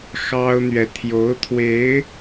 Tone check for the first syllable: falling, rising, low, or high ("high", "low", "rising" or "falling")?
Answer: high